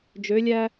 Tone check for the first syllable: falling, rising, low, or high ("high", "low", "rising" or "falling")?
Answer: rising